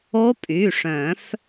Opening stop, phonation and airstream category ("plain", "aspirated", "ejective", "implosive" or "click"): ejective